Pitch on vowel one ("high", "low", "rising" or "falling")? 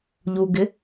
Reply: low